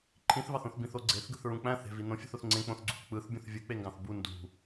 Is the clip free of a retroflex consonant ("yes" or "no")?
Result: yes